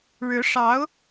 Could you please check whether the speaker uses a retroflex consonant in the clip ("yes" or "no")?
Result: yes